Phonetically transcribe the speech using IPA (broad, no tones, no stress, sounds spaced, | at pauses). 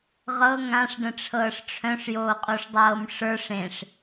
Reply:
ʁ ɤ ŋ ã ʂ ɖ ə̃ ʈ͡ʂʰ ɤː ʂ ʈ͡ʂʰ œ̃ ʂ j oː qʼ o ʂ dˤ ɤː m ʂ ə˞ ʂ ẽ ʂ